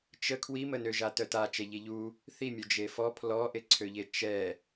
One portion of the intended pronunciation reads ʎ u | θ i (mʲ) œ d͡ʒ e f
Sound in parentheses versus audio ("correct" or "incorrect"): correct